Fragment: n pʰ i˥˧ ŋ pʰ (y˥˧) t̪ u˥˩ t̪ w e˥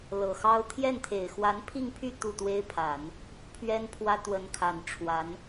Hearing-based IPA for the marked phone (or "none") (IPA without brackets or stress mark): y˥˧